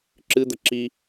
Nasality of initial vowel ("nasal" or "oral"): oral